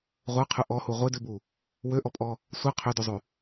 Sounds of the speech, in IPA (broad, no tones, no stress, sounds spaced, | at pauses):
ʁʷ ə˞ qʰ ʉ ʔ ɔ h u ʁʷ e d ʉ b u | w ø ʔ ɔ pʼ ɔ | sʷ ɛ qʰ ø d ʉ zˤ ʉ